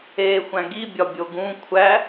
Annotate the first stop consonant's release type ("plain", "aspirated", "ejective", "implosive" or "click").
plain